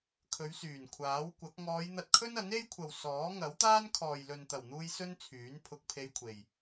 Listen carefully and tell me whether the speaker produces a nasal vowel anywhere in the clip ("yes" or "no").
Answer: no